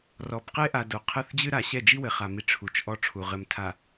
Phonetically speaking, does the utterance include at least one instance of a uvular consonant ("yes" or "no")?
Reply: yes